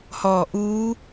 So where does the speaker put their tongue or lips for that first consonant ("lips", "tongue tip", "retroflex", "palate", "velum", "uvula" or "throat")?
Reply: throat